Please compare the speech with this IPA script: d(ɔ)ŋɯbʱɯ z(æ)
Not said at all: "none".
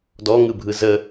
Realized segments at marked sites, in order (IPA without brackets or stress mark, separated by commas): ɔ, ə